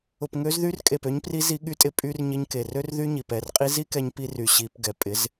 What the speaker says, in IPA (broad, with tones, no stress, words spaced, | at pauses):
ʊ˨pŋø˧z ðy˧rkʼe˨pø˧ɲpri˧ zi˧ɠy˧tʼɪ˧ pʼy˧r ɲɪ˧ɲke˨rø˦r ðy˦ɲi˨p ɛ˨rqʼi˧ zi˦kɛ˧ɲpi˧ry˨ ɕi˧p ɡɛ˨pʼɪ˨˦z